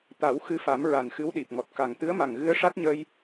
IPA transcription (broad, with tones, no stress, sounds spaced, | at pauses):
t̪ a˨˩˦ w x ɨ˧ f a˨˩˦ m ɹ a˨˩ n x ɨ˧˥ w ɗ i˨˩ p̚ ŋ ɔ˨˩ t̚ k a˨˩ ŋ t̪ ɨ˧˥ ə̯ m a˨˩ ŋ ɣ ɨ˧˥ ə̯ ʂ a˦˥ t̚ ɲ ə˧ j